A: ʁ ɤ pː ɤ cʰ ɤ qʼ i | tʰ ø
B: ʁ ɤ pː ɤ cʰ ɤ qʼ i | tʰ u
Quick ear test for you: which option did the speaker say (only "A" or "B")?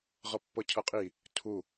B